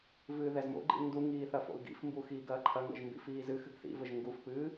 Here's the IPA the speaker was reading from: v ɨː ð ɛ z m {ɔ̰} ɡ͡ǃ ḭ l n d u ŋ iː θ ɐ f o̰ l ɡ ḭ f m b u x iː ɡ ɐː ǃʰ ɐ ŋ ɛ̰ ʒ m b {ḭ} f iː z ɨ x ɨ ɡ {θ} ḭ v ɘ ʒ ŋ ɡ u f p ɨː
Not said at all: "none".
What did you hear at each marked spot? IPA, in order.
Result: o̰, ḭ, θ

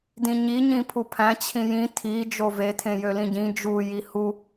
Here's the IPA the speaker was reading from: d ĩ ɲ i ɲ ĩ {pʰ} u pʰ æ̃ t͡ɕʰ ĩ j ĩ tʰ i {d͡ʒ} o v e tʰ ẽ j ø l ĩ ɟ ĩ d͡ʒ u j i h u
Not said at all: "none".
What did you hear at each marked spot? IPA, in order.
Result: pʰ, d͡ʒ

